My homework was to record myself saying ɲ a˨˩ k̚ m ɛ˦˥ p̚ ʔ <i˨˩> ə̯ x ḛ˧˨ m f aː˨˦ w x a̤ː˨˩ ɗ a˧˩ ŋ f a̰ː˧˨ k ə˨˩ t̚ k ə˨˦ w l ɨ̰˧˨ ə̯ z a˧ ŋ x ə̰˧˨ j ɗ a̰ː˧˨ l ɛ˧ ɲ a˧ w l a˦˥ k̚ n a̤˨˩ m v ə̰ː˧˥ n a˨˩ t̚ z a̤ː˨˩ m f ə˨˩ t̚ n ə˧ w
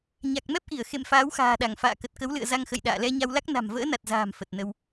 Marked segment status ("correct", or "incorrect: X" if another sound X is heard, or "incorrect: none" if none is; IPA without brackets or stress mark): incorrect: i˧˩